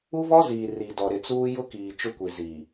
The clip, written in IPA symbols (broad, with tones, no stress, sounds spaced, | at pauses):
u˦ v ɔ˦ z iː˨ r i˨ d ɔ˨ ɾ ɪ˨ t͡s uː˦ j ʊ˦ k iː˨ t͡ʃ ʊ˦ kʷ i˨ z iː˨